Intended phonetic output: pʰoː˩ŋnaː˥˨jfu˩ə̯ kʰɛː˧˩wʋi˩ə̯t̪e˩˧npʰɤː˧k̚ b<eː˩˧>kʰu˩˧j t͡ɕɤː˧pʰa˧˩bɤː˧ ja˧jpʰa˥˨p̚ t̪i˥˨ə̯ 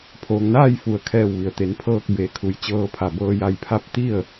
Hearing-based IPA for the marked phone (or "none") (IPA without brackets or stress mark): eː˩˧